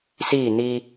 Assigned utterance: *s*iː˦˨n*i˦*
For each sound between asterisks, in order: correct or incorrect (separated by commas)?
correct, correct